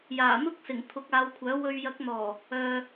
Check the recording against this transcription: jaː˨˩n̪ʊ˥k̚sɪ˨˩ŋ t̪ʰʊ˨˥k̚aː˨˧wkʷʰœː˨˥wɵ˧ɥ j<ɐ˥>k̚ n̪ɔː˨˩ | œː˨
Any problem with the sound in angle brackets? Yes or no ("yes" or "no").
yes